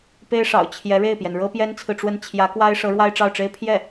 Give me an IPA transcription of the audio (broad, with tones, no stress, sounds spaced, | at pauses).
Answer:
p e˥ ɪ̯ ʂ ɑ̰˨˩ ʊ̯ t͡ɕʰ j ɛ˧˥ ɻ e˥˩ ɪ̯ p j ɛ˩ n ɻ ɤ˥ p j ɛ˥ n t͡sʰ ɹ̩˨ ʈ͡ʂ w ə˥˩ n t͡ɕʰ j ä˧˥ k w a˥ ɪ̯ ʂ ɤ˧˥ ɻ w a˥ ɪ̯ ʈ͡ʂ ɑ˥˩ ʊ̯ ʈ͡ʂ e˥ ɪ̯ pʰ j ɛ˥˩